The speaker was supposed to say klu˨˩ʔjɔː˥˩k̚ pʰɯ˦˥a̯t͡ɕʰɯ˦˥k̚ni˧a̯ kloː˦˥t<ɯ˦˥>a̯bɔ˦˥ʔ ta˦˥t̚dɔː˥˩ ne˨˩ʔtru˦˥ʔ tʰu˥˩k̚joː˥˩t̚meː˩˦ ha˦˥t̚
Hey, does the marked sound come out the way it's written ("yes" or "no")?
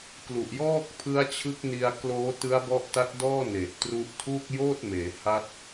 yes